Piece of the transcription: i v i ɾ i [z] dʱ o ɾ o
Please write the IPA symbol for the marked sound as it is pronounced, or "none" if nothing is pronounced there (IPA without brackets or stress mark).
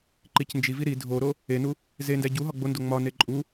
none